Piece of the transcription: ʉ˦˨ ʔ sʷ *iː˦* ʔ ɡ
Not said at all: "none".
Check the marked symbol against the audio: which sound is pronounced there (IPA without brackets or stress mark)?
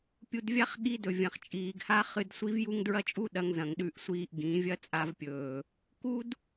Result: iː˦